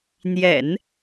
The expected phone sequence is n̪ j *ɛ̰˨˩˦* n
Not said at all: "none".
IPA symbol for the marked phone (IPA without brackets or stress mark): ɛ̰˨˩˦